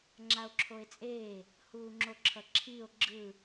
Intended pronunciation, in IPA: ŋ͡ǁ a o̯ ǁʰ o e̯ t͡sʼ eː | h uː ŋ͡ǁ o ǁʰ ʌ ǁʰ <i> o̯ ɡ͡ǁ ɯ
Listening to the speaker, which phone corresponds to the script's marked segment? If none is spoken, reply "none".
i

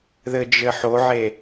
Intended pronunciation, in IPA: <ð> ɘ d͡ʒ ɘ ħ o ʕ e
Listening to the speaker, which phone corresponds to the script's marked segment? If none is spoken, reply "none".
ð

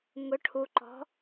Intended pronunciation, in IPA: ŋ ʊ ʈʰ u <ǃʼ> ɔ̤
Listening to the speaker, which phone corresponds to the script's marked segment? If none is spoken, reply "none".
ǃ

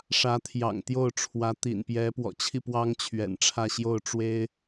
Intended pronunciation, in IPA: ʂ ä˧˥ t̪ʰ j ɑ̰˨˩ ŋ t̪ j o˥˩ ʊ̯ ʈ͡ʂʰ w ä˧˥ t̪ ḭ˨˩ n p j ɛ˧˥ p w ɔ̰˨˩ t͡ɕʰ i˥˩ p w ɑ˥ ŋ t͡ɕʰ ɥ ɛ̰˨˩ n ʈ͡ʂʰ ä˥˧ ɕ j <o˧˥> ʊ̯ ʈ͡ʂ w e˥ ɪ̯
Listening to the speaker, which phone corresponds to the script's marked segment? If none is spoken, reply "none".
o˥˩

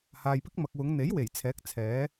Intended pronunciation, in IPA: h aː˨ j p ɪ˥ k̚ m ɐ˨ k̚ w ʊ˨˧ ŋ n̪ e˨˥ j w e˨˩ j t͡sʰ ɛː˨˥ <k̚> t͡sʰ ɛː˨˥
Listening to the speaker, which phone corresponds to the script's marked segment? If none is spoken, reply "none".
k̚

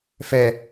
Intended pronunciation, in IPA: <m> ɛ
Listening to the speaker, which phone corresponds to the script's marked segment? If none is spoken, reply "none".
f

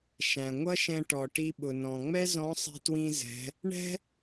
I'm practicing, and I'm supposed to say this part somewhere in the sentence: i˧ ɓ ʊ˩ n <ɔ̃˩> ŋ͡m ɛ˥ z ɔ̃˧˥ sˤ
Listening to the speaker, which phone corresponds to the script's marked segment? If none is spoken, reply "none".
ɔ̃˩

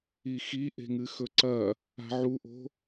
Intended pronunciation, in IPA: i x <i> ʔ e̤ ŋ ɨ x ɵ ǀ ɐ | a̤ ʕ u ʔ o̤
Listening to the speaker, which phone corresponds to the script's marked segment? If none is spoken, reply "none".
i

